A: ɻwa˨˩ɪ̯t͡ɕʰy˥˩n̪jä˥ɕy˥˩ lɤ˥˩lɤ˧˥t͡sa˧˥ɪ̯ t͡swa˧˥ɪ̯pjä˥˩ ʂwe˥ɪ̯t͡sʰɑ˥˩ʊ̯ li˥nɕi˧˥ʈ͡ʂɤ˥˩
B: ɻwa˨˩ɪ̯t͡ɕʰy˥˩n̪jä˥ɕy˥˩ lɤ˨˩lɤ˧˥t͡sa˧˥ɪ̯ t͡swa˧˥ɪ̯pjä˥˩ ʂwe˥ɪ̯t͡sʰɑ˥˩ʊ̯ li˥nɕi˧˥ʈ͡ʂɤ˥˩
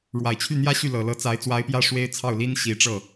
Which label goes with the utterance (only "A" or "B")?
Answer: B